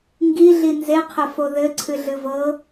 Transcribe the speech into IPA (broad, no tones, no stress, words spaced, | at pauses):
ŋɡiɮi nzeqʰɘfo ðɘǀʰɨɮɨ vɤ